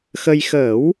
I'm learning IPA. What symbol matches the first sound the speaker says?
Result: x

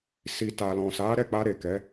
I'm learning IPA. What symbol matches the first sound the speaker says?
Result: s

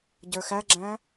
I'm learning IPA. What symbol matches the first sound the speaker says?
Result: ɟ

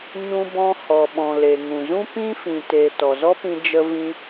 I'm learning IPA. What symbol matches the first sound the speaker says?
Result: ɲ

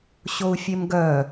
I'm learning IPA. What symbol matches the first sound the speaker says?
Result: ɕ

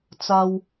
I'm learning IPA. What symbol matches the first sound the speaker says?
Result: t͡s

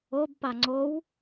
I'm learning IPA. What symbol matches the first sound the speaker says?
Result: o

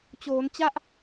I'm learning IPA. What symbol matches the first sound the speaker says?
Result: t͡ɕ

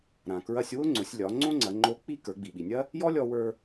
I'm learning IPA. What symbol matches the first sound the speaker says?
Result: ɾ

